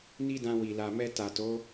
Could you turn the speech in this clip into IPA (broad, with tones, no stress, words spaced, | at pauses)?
ni˦dã˧ wi˨ la˨mɛ˧ ta˨to˨˦